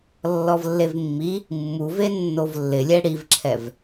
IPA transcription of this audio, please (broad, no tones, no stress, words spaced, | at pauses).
lːɔvlːevmːi | mːuve nːovlːɪlʲɛ ɽivǁʰɛv